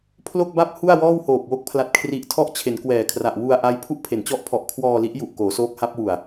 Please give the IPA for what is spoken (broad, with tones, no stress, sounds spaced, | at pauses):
pʰ l o˥˩ k̚ b a˥˩ p̚ h u˥˩ a̯ w ɔː˥˩ w h oː˨˩ p̚ w o˦˥ k̚ pʰ l a˨˩ t̚ kʰ r i˨˩ ʔ tʰ ɔ˦˥ ʔ t͡ɕʰ e˩˦ n k w ɛː˨˩ kʰ r a˨˩ ʔ w u˧ a̯ ʔ a˦˥ j pʰ u˥˩ ʔ pʰ e˩˦ n t͡ɕ ɔ˦˥ ʔ pʰ ɔ˨˩ ʔ kʰ w ɔː˧ l i˦˥ ʔ j u˨˩ ʔ k oː˩˦ s oː˦˥ k̚ h a˦˥ p̚ w u˨˩ a̯